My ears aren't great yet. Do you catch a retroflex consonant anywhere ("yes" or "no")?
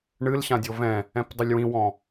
yes